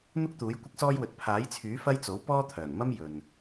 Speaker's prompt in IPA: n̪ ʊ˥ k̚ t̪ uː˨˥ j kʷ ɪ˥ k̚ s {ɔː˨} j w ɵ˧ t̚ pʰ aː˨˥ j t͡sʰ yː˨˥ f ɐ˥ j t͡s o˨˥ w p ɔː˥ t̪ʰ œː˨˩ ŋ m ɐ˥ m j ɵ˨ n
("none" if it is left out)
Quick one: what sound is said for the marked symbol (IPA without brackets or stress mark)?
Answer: ɔː˥